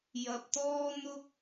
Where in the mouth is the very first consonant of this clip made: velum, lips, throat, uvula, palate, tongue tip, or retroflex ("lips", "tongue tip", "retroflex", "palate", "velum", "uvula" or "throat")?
palate